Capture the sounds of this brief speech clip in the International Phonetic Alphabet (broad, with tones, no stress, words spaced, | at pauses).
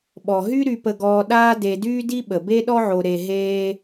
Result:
ɓɔ˩ɦy˦ ɾy˨pə˨ɡɔː˨ ɗaː˦de˨ dyː˦di˦ɓə˩ be˥ɗɔ˥ʕo˨ ɾe˨ɦeː˦